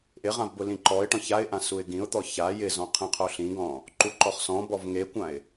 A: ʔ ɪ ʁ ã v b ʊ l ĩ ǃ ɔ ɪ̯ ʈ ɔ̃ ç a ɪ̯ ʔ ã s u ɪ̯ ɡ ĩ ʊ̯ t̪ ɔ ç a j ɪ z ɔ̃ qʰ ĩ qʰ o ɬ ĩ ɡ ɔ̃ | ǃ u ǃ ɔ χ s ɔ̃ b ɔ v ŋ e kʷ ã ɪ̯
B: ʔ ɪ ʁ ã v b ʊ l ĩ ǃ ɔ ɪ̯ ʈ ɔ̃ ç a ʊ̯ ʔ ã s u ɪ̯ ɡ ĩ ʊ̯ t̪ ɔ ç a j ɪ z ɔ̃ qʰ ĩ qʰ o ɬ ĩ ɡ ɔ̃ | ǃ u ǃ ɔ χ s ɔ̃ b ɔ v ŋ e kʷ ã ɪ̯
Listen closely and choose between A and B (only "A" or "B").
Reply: A